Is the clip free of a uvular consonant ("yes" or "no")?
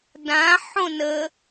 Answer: yes